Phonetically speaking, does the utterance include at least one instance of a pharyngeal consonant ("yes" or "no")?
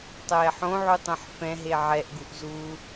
yes